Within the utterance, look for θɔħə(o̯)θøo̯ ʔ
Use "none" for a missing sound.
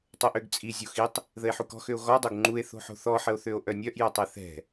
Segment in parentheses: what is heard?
o̯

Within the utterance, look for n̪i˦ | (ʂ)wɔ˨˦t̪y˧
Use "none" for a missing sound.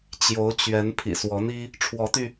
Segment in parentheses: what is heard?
ʈ͡ʂʰ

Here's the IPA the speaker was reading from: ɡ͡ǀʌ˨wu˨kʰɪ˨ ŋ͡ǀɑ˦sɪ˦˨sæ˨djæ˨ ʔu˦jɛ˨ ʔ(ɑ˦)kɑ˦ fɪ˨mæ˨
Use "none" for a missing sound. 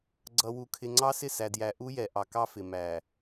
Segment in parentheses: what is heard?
ɑ˨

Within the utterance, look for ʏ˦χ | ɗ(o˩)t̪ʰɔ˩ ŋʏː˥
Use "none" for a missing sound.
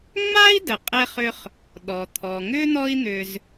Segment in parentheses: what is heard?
ɔ˩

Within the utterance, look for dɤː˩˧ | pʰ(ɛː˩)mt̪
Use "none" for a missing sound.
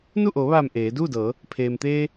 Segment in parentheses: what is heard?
eː˩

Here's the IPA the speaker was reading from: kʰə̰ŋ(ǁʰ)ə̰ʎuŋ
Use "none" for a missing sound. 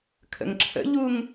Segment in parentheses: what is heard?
ǁʰ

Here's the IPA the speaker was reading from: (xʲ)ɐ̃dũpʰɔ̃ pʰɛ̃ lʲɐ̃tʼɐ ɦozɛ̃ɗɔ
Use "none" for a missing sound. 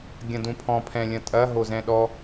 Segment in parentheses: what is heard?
ɡʲ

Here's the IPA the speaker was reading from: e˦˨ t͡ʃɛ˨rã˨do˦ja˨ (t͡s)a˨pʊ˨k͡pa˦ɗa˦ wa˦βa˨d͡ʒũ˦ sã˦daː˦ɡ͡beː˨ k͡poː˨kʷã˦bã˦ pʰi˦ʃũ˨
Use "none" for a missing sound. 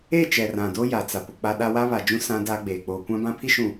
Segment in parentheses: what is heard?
t͡s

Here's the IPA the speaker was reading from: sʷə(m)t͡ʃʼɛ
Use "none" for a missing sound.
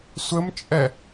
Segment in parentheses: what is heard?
m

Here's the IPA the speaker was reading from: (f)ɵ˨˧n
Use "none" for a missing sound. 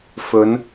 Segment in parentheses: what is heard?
f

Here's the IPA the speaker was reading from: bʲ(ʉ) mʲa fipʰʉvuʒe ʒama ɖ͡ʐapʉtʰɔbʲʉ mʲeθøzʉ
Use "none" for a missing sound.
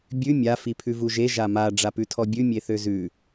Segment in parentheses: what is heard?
ʉ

